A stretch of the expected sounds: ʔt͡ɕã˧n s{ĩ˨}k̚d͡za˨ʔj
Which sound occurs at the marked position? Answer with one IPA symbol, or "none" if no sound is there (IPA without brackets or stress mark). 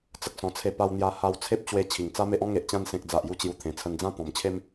ẽ˨